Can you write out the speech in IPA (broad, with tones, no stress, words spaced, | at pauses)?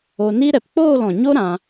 o˧ni˦ ɾɛ˨pk͡poː˦˨lɔ̃˨ɲo˦ ɾã˧